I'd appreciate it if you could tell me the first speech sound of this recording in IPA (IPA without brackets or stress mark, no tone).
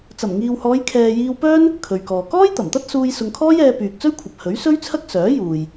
t͡s